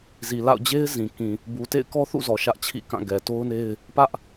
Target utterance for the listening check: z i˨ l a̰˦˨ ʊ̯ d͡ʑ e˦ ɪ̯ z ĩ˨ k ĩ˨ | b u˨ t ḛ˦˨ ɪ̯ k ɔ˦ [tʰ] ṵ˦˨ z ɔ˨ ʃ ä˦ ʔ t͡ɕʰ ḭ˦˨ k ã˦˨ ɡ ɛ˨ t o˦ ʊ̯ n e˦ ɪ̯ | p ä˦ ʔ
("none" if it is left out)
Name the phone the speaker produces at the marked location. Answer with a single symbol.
θ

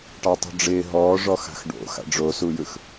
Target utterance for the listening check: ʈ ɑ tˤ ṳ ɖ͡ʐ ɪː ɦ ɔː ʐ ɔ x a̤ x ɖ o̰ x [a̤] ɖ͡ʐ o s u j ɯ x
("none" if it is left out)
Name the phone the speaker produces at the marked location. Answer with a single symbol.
a̰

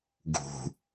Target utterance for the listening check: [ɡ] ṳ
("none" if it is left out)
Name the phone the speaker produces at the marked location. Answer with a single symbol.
ɡ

